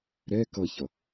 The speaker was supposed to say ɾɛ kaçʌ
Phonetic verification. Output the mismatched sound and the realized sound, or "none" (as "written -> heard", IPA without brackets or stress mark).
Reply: a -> ʌ